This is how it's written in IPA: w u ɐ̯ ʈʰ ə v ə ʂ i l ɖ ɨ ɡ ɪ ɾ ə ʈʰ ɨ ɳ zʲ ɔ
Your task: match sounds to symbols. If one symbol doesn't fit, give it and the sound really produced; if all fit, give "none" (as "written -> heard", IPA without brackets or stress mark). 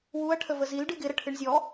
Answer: ʂ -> z